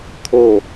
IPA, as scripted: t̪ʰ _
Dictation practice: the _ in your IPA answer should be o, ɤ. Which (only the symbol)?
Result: o